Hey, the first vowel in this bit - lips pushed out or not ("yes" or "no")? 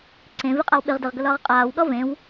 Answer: no